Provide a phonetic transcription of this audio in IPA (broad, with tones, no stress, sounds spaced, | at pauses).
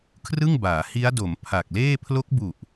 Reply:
kʰ r ɯ˥˩ ŋ b aː˩˦ h i˦˥ a̯ d o˩˦ m pʰ a˨˩ k̚ l eː˥˩ pʰ l o˦˥ k̚ b u˨˩ ʔ